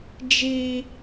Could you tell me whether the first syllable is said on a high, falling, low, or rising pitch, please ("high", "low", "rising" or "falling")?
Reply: high